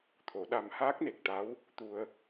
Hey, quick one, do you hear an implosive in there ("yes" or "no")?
yes